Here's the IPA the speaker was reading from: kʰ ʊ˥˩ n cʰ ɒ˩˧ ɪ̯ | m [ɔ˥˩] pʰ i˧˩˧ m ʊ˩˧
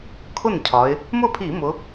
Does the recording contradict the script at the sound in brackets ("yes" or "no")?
yes